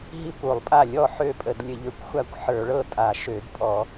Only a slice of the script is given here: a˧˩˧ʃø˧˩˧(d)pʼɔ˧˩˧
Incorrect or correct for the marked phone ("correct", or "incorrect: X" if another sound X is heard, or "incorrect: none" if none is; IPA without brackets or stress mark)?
correct